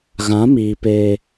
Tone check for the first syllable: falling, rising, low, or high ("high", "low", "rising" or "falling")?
rising